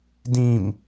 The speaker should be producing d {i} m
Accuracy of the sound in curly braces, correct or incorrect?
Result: incorrect